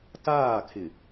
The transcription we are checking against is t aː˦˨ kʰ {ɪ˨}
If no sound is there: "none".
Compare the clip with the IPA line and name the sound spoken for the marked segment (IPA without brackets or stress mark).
ɪ˨